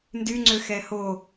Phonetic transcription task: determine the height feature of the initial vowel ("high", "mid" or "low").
high